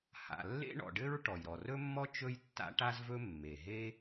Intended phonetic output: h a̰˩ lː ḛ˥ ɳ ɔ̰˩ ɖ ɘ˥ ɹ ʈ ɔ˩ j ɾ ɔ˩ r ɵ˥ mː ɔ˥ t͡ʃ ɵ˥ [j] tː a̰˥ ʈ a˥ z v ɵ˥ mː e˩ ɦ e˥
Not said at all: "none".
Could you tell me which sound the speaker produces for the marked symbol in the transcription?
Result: j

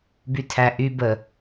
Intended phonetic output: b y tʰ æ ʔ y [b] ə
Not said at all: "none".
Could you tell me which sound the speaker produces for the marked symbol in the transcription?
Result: b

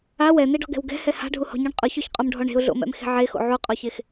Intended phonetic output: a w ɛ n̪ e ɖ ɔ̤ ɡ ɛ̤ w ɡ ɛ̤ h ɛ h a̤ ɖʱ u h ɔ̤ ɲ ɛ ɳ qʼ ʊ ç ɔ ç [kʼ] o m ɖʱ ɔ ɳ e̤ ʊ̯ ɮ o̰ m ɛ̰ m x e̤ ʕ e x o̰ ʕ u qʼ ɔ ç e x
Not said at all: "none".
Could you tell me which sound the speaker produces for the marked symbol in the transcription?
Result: qʼ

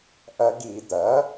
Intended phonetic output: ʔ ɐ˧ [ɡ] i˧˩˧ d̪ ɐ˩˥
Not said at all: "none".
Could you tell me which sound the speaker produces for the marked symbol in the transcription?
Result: ɡ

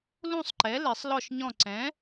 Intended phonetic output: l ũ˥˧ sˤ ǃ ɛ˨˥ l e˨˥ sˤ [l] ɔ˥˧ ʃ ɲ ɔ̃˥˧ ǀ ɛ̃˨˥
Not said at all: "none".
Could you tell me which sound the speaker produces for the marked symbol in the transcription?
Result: l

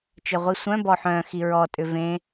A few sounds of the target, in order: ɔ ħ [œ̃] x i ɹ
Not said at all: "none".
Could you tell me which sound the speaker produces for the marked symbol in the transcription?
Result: œ̃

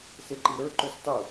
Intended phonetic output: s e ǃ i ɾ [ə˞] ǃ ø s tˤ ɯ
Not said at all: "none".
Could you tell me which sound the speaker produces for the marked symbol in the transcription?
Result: ə˞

